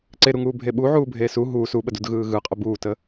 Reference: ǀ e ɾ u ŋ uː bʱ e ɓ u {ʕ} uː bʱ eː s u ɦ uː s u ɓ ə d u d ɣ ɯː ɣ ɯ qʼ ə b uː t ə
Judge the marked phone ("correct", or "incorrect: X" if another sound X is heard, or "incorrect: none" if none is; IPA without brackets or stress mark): correct